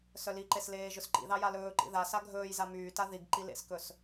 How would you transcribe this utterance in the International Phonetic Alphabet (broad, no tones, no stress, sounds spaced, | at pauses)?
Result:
s œ l i ǃ e s l eː ʒ ɵ s ǃ ḭ ð ɑ j a l ɵː ǃ ḭ ð a s a ɡʱ ɵː j z a m yː t a ð i ɡ ǃ i l ḛ s k ɵ s